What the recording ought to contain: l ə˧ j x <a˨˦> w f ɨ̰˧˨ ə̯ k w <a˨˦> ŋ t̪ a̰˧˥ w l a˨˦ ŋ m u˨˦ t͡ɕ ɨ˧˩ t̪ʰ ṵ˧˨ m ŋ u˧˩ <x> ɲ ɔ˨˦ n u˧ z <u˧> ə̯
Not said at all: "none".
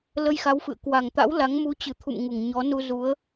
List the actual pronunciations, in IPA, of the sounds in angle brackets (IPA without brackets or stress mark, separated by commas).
a˨˦, a˨˩, ŋ, u˨˦